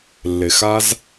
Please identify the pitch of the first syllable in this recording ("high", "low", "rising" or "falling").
low